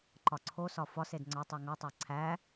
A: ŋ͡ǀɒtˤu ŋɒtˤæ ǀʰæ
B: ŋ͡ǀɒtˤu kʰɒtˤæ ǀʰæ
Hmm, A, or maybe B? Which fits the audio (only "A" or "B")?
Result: A